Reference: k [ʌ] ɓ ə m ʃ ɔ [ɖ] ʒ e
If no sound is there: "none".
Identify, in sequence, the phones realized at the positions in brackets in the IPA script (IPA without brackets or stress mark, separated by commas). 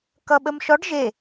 ʌ, ɖ